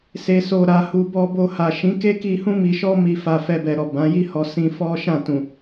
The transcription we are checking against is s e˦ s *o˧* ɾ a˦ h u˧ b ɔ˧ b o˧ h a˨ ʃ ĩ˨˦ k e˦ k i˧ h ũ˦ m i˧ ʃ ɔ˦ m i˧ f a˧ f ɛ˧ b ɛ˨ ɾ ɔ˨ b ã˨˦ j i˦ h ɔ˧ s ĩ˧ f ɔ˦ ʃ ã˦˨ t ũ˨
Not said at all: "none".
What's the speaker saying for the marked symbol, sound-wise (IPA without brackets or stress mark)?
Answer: o˦